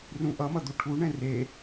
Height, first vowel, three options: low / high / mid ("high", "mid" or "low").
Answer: high